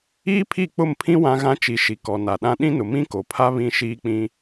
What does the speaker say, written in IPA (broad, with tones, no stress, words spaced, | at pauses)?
iː˦pʰi˦˨k͡pʊ˦˨mpʰĩ˦ wã˦ ɣã˦t͡ʃi˨˦ʃi˨ kɔ˨ na˨ɗã˦ ɗĩ˦nʊ˨ mĩ˦ko˨pʰa˦ βĩ˦ʃiː˦k͡pĩ˦